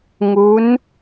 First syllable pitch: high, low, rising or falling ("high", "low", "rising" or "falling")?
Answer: rising